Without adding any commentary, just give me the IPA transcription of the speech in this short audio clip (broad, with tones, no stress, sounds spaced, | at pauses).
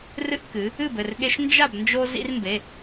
r ɨ˦ ʔ k ɨ˩˧ | ɨ˥˨ b ɘ˩˧˩ r ɠ e˦ ʃ n d͡ʒ a˥˨ b n d͡ʒ o˦ z ḭ˦ r m b e˩˧˩